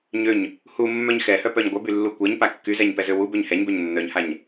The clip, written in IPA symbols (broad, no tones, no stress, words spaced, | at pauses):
ɲøɲ | humːœɲ xɛhœpœɲ ɡʷœbylːu kʷɛɲpa kːyzɛɲpɛzø wubøɲ hɛɲbøɲ nːœɲhaɲ